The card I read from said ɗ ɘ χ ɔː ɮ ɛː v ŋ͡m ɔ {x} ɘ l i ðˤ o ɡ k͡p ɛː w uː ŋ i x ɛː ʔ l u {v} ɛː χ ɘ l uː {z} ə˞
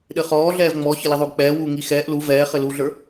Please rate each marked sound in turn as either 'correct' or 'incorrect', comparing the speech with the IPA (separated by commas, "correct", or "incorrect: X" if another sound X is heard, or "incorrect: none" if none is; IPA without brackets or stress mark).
incorrect: ç, correct, incorrect: ɮ